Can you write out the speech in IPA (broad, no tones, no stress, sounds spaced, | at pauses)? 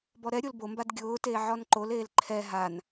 b ɔ ɾ ɛ ɾʲ o l b o m b a d ɡʲ ʊː t eː ʕ ɔ n ǃ o l eː l ǃʰ ɛ ɦ a n